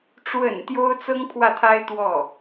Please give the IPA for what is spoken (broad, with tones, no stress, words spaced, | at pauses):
ʈ͡ʂwə̰˨˩n t̪jo˥ʊ̯t͡sɤ˥ŋpʰwä˥˩t̪ʰa˥ɪ̯ t̪wɔ˥˩